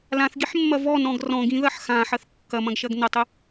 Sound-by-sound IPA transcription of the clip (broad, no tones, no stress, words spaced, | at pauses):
lãθɡiħmːɐ vɔnɔ̃ɡ rɔ̃ɡĩðɐħ xãħɐθ kːɐmɐ̃ɡʃɐɡ nətˤɘ